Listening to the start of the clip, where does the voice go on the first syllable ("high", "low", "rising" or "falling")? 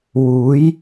rising